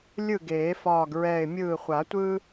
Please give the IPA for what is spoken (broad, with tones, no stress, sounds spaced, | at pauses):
lʲ ɯ˥˨ ɡ eː˨˩˦ f ɒː˧˩ ɡ ɹ ɛː˧˩ ɪ̯ mʲ ɯː˧˩ χʷ a˨˩˦ tʷ ɯː˦